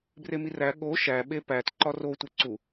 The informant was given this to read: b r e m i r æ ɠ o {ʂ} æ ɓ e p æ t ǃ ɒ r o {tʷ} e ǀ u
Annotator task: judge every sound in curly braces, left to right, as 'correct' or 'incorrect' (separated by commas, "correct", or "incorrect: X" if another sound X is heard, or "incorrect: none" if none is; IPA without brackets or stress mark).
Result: incorrect: ʃ, correct